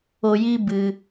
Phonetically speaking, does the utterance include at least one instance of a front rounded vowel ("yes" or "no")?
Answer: no